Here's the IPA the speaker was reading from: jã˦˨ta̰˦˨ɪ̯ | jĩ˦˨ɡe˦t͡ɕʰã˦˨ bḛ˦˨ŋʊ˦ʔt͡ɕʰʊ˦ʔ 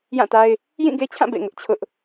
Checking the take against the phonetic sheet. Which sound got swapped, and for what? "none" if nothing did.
a̰˦˨ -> a˦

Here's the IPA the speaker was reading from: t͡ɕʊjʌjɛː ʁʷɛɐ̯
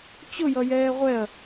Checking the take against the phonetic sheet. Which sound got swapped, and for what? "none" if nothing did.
none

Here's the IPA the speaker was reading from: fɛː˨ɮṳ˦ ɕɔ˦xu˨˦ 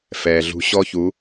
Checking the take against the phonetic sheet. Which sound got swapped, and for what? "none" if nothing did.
x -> ç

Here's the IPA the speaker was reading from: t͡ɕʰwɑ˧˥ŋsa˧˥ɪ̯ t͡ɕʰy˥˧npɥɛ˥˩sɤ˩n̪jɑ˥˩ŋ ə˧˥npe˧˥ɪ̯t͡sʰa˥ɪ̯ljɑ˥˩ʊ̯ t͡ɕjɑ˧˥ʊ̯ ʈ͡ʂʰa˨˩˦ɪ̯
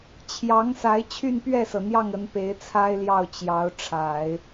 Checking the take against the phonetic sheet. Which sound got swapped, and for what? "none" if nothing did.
w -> j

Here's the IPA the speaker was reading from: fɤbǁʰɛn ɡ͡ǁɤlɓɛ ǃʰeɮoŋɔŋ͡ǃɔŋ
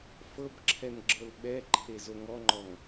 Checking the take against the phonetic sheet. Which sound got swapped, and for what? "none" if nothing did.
ɮ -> z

